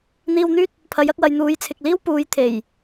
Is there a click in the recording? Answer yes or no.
no